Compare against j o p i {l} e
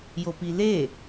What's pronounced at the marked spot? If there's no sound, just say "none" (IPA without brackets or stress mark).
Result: l